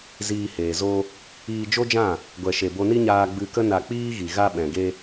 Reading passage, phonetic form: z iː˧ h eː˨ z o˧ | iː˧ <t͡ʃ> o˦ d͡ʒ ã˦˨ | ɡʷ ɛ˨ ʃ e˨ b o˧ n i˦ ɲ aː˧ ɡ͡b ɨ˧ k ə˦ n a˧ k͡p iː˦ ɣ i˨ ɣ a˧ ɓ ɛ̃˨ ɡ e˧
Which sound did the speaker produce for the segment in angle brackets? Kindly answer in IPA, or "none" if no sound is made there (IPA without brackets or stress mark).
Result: d͡ʒ